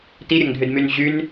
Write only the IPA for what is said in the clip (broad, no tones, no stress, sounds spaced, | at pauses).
t i ɾʲ ɐ ŋ dʱ ʏ d m y n ʑ y n